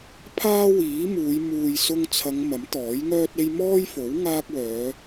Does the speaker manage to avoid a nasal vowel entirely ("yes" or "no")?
yes